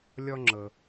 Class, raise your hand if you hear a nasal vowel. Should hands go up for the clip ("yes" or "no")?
no